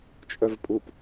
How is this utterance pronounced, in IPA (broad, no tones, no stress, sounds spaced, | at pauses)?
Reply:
t͡ʃʼ œ v pʼ u p